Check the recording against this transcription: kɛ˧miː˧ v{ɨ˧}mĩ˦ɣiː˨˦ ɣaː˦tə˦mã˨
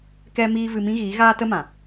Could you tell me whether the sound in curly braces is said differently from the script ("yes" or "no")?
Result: no